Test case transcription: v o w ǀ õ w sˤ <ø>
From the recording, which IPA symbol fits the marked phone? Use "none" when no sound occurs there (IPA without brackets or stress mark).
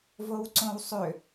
ø